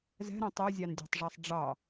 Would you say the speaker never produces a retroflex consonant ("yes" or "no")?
no